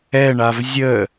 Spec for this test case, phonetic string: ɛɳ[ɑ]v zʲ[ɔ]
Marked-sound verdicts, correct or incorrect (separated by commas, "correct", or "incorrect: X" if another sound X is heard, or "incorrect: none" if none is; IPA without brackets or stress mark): incorrect: a, incorrect: ə